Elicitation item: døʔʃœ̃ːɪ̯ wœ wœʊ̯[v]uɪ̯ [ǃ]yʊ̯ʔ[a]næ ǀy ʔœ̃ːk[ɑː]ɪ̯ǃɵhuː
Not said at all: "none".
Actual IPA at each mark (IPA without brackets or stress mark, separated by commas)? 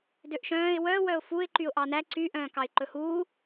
f, ǃ, ɑ, ɑ